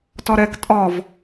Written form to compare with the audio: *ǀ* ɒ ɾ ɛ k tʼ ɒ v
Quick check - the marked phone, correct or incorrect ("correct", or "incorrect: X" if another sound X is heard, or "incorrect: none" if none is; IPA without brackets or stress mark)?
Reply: incorrect: t